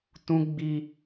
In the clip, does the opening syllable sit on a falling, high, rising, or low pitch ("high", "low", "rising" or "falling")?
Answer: high